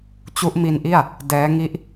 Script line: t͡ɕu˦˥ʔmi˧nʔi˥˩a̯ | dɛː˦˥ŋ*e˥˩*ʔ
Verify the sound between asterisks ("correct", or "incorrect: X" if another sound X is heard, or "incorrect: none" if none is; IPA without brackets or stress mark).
incorrect: i˥˩